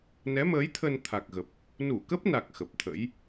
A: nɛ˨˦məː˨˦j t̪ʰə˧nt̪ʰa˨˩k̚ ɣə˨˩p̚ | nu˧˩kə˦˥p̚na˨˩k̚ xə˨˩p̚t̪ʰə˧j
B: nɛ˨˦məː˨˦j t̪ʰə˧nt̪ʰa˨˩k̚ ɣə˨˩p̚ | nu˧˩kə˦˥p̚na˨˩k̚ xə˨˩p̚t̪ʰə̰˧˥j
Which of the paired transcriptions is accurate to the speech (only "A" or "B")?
B